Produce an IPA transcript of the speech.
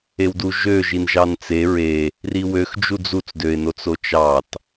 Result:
e w d u ʒ ø ʒ i n ʒ ɑ n t͡s e ɹ e | r i w ø x d͡ʒ u d͡z u t͡s d ø ɪ̯ n o t͡s o t͡ʃ ɑ t

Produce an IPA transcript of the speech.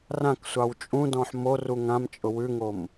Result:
r ã k sʷ ɑ w t͡ʃʼ ũ d ɔ̃ ħ m o r u ŋ ã m t͡ʃʼ ʊ w ʉ ŋ o m

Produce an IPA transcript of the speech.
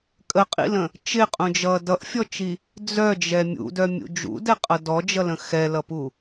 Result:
kʼ ə qʼ ḭ l ə̃ | t͡ʃ ɪ qʼ ũ d͡ʒ ʌ d ʌ ʔ fʲ ɔ t͡ʃ i | d͡z œ d͡ʒ ɛ mʲ ṵ d œ mʲ ṵ d͡ʒ ṵ d ɛ qʼ ʌ d ɔ d͡ʒ ʌ l ə̃ x ɛ l ʌ p u

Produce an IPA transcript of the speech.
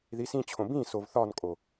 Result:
ð i s ĩ t͡ɕʰ õ b ĩ s o v θ ɒ n kʼ o

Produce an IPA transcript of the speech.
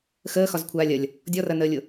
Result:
x əː x ɒ z kʷʰ aː lʲ ɐ lʲ | dʲ ɔ r ɐ n əː lʲ ʊ

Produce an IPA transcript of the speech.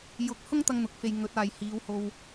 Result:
j ʊ˧ k̚ h ʊ˥ ŋ t̪ ɐ˧ ŋ n̪ ʊ˨ k̚ f e˨ j ŋ ɵ˨˥ t̚ aː˨ j h iː˨˧ w h o˧ w

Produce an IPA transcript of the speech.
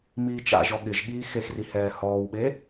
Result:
m iː t͡ʃ a̰ ʒ ɔ ɠ ɪ ʒ ɠ iː x e x r i h ɛː h ɔː w ɓ e

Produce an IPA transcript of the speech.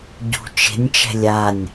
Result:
ɟ ṳ t͡ʃ e̤ nʲ t͡ʃ ɛ̤ lʲ a nʲ

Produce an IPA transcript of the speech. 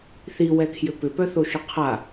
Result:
θ i w ɛ kʰ j ʏ p ʏ p œ θ o ʃ ʊ qʰ a

